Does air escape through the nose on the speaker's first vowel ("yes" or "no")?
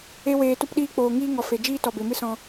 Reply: no